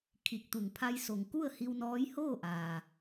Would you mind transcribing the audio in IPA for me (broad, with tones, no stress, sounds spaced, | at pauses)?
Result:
kʰ i˧˩ k̚ t̪ u˧˩ ŋ pʰ a˧ j s o˩ ŋ k u˥˨ ə̯ h i˧ w n ɔː˧˥ j h oː˥˨ ʔ aː˩